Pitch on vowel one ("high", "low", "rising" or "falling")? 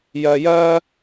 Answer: low